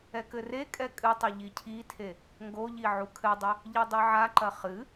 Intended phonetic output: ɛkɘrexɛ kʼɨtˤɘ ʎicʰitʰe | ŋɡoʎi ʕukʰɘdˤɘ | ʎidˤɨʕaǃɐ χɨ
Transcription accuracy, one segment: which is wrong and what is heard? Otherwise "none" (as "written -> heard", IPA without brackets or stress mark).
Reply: x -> kʼ